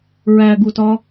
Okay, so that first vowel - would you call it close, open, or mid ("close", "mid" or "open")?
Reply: open